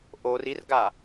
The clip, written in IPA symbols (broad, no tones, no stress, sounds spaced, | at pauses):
ʔ o r i r ɡ a